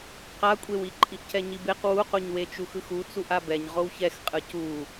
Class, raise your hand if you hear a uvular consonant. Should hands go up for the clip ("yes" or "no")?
yes